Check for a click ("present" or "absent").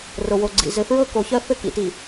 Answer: present